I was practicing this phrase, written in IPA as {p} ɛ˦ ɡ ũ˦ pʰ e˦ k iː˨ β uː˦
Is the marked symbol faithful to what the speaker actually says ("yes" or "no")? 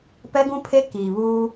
yes